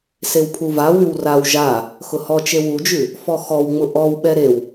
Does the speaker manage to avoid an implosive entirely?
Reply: no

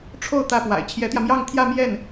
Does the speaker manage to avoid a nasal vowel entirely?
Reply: yes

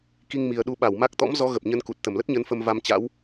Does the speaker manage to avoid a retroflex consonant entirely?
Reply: yes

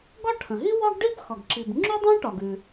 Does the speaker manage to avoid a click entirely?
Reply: no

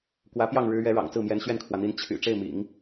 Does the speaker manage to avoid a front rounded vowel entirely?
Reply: no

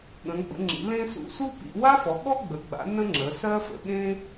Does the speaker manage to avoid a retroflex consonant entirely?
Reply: yes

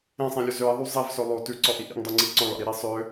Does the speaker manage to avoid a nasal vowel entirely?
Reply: no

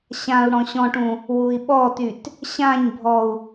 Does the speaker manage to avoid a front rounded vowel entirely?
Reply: no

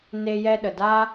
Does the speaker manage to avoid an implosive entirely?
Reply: no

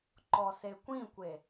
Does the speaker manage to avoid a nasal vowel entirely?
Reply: no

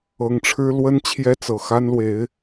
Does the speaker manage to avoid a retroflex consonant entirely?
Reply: no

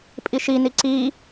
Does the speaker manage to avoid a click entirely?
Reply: no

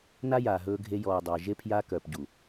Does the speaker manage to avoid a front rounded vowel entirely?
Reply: no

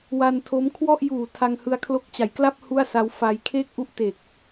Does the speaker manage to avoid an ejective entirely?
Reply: yes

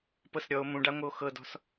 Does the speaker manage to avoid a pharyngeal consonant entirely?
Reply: yes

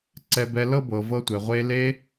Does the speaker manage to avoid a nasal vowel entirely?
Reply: yes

